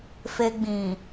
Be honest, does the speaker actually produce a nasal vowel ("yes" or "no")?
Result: yes